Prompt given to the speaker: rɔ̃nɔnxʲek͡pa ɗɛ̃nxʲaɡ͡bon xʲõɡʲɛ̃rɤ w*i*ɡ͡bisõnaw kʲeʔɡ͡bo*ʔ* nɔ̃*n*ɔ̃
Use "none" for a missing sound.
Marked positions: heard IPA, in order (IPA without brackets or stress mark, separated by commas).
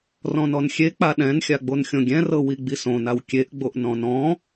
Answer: i, ʔ, n